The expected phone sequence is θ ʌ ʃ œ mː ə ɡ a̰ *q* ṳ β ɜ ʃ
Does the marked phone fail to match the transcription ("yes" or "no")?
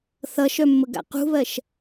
no